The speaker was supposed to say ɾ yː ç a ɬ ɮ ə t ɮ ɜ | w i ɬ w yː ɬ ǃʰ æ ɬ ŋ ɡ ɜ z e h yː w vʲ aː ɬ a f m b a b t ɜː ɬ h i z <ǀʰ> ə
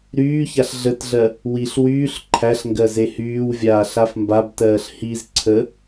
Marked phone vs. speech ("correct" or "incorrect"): correct